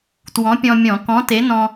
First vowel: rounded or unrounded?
rounded